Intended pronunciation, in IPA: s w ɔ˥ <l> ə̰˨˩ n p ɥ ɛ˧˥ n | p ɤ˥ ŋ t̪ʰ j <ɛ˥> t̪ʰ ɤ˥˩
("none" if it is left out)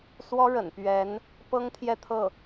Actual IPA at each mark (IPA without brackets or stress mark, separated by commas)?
ɻ, ɛ˥˧